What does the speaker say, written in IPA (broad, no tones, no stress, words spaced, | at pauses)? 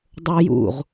dˤojṵʁ